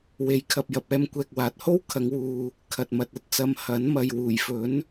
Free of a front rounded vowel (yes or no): yes